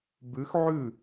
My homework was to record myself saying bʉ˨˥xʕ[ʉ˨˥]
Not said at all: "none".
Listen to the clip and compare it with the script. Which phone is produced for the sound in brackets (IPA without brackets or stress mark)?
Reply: ʉ˥˩